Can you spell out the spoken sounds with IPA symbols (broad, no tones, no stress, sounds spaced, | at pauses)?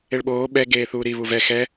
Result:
e ɭ ɓ oː ɓ ɛ ɡ eː θ uː ɾ i β u v ɛ x ɛ